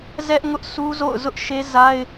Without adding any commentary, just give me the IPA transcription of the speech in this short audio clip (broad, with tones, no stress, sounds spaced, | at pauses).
z ɛ˦ ʔ ŋ ʊ˦ ʔ sʰ u˦ z o̰˦˨ ʊ̯ z ʊ˦ ʔ ʃ e˦ z a˦ ɪ̯